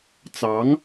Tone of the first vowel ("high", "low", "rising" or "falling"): rising